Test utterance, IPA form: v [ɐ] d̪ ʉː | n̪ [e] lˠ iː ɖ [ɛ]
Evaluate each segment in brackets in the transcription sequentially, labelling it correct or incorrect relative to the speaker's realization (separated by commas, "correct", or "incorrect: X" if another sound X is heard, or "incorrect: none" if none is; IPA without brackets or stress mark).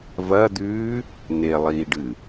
correct, correct, incorrect: ɨ